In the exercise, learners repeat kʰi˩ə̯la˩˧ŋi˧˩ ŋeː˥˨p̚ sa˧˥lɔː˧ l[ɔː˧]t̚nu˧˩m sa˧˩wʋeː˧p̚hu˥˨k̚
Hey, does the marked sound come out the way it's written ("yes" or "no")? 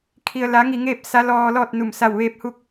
no